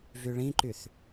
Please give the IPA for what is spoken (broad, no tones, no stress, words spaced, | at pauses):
vyɭĩǃyθ